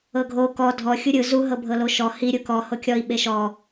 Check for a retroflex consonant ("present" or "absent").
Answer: absent